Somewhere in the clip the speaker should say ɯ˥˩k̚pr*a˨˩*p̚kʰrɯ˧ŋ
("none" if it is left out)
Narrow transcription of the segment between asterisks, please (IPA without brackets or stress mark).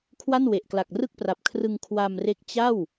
a˨˩